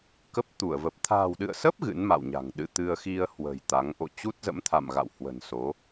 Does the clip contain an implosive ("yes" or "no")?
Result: yes